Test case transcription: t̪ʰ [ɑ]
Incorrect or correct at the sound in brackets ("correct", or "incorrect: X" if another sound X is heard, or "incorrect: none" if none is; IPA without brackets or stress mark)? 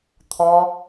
incorrect: ɔ